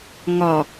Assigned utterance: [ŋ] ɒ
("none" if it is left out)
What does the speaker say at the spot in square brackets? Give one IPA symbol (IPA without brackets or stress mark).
ŋ